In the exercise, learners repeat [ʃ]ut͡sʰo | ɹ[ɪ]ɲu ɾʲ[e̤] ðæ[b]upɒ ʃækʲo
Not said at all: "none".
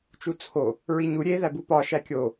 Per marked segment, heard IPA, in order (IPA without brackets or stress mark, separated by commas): t͡ʃ, i, e, b